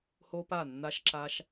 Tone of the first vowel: high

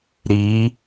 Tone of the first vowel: rising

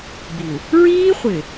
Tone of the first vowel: low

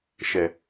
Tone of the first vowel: low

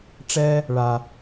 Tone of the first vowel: low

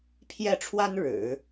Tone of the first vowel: falling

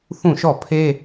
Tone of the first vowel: falling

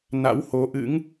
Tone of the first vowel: rising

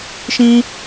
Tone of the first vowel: high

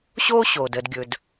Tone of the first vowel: high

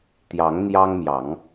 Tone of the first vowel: rising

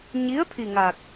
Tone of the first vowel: rising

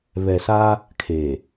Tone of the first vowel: low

